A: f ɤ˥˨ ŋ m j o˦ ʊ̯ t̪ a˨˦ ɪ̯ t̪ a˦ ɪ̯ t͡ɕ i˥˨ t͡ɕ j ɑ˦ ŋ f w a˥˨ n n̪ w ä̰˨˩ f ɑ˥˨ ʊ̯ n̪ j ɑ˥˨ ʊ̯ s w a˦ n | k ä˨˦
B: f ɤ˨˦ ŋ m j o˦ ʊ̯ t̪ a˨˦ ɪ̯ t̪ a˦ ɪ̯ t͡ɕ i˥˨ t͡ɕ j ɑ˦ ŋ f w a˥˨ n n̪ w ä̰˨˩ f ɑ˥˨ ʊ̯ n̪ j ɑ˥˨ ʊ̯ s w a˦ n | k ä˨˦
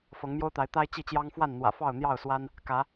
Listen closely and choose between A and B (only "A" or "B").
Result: B